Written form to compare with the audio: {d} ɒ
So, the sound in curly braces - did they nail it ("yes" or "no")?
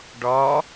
no